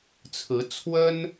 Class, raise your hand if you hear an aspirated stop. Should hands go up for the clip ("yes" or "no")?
yes